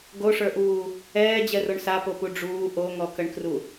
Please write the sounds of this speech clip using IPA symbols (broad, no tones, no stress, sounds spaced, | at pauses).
ɡ o ʂ ə˞ ʔ uː | ɛː d͡ʑ ɛ r o ɳ s a p o p u ɖ͡ʐ uː ʔ o ŋ ɔ k ə ɳ k r u